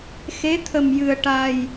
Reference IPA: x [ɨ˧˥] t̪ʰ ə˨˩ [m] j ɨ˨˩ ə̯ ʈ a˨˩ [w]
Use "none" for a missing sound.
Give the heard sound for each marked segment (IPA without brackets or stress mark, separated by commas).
e˧˥, m, j